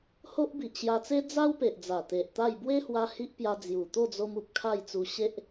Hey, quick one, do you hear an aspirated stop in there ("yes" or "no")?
yes